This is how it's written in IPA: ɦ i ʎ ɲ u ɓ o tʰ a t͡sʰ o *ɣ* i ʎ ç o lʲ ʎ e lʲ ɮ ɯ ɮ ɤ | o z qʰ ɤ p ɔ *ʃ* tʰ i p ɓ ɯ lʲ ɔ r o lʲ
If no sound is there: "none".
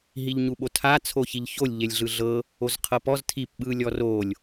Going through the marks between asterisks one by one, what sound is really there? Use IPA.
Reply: ç, z

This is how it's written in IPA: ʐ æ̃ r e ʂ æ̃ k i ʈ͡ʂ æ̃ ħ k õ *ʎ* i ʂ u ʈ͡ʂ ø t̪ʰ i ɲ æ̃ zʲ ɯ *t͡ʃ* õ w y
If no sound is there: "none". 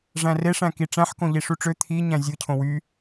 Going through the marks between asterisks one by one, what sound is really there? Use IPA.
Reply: ʎ, cʰ

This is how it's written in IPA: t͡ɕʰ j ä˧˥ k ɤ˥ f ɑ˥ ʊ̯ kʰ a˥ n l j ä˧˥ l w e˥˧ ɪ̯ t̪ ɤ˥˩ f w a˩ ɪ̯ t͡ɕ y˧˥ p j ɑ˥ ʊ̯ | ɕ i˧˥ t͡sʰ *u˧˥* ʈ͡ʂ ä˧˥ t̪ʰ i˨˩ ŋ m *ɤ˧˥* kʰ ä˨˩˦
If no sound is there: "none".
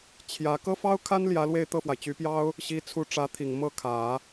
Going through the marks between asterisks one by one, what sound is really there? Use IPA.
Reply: u˧˥, ɤ˥˩

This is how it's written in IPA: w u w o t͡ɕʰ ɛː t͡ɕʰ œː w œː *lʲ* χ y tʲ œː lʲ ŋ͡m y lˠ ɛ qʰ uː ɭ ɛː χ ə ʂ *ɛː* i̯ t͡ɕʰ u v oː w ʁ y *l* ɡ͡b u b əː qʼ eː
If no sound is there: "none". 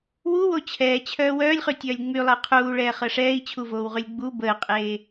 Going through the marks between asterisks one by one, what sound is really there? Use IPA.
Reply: lʲ, ɛː, lʲ

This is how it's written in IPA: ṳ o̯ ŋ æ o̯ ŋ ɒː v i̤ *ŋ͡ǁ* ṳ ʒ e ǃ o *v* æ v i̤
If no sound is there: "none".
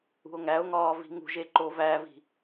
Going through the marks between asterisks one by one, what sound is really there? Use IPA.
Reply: ŋ, v

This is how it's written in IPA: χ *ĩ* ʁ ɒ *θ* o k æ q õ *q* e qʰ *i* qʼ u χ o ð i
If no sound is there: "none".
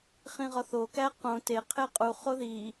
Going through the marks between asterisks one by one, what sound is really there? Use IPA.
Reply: ĩ, θ, t, e

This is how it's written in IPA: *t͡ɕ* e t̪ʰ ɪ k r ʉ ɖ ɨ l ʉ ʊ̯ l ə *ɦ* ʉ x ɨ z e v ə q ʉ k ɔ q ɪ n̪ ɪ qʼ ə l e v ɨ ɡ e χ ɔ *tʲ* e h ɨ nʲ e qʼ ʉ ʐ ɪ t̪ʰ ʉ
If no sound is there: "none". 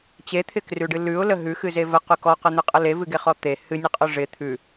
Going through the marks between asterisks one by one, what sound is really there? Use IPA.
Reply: t͡ɕ, ɦ, t̪

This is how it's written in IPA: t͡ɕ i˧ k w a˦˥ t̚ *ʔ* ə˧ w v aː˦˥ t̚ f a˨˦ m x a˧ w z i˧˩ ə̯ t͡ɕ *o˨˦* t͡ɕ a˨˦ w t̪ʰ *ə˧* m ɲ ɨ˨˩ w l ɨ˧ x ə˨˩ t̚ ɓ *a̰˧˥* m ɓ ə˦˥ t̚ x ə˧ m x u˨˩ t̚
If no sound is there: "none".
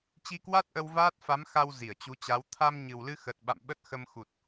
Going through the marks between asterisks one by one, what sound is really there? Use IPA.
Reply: ʔ, u˨˦, a˧, a̰˧˨

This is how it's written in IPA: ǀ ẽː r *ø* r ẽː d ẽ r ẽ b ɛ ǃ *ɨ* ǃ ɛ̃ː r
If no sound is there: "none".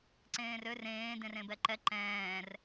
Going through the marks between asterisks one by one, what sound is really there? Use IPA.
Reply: ø, ɛ

